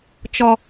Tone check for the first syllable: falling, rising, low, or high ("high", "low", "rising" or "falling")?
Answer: low